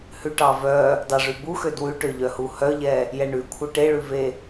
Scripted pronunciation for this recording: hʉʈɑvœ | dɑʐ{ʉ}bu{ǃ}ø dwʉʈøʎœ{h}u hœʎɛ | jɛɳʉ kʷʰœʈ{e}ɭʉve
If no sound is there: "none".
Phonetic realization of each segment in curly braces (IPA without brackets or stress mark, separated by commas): ʉ, x, h, e